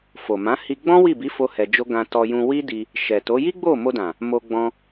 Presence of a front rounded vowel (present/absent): absent